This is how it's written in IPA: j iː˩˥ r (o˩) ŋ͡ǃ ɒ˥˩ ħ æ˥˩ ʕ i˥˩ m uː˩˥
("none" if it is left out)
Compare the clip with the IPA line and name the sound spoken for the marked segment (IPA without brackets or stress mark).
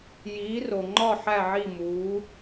o˩